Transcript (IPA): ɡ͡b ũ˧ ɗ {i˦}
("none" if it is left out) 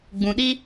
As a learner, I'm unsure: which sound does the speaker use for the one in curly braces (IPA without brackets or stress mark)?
i˦